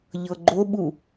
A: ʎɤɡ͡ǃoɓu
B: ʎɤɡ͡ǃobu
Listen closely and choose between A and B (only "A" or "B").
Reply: A